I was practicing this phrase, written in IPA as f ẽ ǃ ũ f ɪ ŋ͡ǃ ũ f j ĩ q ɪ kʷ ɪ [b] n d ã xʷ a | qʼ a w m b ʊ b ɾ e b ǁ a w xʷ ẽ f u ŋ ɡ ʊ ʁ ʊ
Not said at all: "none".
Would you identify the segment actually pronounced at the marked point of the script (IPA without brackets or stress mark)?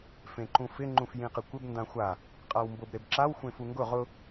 b